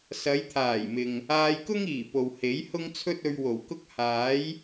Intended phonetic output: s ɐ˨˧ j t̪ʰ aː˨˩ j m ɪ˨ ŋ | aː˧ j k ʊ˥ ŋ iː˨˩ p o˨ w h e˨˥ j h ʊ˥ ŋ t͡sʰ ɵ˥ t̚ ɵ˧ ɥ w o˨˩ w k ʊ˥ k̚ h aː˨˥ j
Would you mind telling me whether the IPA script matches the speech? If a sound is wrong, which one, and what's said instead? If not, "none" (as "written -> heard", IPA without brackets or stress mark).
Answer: none